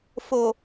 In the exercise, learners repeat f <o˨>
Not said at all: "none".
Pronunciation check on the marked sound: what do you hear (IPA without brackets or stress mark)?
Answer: o˨